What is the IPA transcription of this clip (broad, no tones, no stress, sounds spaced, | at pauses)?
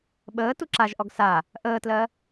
ɓ əː t u ǁ a ʒ ʔ ɔ ɡ s a | ʔ əː t l ɜ